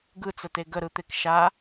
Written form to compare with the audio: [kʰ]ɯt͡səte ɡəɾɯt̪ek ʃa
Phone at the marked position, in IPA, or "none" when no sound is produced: ɡ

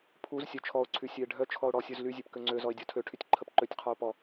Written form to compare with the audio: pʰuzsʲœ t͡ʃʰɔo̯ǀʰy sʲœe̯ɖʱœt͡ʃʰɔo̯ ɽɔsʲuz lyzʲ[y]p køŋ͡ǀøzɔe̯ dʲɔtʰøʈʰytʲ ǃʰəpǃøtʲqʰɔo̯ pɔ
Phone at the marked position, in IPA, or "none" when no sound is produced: ø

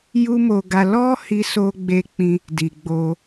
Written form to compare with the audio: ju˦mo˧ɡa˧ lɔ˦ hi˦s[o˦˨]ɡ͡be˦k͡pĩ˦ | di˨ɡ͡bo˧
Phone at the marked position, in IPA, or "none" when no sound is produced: o˦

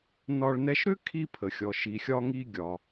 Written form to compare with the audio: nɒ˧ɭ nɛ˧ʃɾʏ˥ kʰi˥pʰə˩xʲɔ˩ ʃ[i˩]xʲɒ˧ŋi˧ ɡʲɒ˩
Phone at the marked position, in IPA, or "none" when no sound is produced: i˩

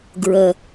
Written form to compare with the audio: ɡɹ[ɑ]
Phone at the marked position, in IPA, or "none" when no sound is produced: ə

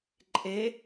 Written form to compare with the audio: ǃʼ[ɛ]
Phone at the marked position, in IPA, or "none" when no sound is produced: e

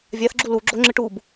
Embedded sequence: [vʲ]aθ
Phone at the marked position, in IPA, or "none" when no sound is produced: vʲ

